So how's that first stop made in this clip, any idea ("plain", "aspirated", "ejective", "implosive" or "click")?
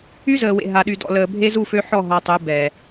implosive